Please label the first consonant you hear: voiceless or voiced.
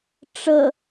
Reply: voiceless